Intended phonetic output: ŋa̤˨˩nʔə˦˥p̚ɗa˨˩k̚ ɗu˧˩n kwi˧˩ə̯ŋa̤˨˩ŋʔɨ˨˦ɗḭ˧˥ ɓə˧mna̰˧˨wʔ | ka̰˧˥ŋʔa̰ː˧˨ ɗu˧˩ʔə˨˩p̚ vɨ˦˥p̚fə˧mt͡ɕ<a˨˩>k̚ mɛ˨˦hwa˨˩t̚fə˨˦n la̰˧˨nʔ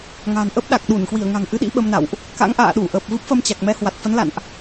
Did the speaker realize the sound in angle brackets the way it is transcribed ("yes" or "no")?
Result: yes